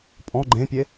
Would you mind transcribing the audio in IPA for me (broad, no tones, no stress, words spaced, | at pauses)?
pʼɔ̃ ɡ͡ǃẽpʲe